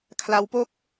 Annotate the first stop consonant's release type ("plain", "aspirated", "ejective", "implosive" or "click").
aspirated